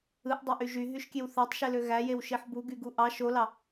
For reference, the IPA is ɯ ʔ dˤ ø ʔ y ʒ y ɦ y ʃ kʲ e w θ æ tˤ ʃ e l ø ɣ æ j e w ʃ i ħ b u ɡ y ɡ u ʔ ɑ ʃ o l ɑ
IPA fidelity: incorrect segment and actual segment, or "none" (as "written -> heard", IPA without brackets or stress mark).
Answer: none